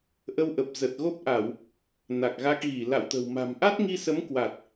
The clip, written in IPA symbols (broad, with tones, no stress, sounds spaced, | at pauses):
ʔ ə˧ w ʔ ə˨˩ p̚ z ə˨˩ t̚ ɣ o˦˥ p̚ ʔ a˧˩˨ w | n a˨˩ k̚ ɣ a˦˥ k̚ ɣ i˧˩ l a̰˧˨ w t̪ ə̤˨˩ w m a̤˨˩ m ʔ a˦˥ t̚ ŋ i˧ s ə˨˦ m k w a˨˩ t̚